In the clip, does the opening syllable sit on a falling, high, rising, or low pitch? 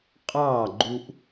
falling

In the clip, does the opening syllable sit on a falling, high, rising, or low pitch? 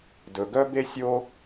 low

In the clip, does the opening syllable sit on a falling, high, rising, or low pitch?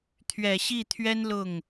low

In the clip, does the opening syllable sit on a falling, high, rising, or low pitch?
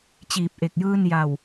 low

